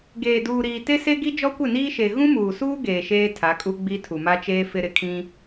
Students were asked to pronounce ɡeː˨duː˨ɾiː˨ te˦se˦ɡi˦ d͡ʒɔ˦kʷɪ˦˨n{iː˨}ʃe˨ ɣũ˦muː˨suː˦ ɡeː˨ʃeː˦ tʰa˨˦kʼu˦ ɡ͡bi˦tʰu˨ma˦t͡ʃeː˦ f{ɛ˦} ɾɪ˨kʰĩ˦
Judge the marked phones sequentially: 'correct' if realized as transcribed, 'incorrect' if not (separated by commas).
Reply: incorrect, incorrect